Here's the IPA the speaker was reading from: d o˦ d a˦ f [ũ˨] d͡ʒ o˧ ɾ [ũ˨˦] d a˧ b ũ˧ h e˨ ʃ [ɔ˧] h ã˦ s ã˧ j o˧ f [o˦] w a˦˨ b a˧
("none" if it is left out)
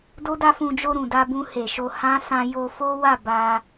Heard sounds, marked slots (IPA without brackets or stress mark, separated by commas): ũ˧, ũ˨, o˧, o˦